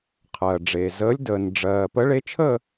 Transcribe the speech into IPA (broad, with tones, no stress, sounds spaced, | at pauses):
qʰ ɜ˩ ɖ͡ʐ eː˩ z əː˨˥ lʲ d əː˩ n ɖ͡ʐ ɜː˩ p ə˨˥ ɭ e˨˥ t͡ʃʰ ə˦˨